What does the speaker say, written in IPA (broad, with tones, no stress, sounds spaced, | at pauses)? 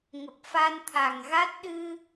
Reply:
ŋ ə˨˩ p̚ f a˧ n t̪ʰ a˨˩ ŋ ɣ a˦˥ t̚ ɗ ɨ˧